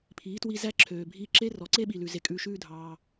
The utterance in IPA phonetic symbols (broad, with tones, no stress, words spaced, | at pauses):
pʰiː˨˦twi˧zæ˦ǁʰøː˨ bʱiː˧ǁe˦rɔ˨ ǀe˦ɓi˨lʉ˨ ze˧kʼʉː˧ʃʉː˦ dʱɑː˧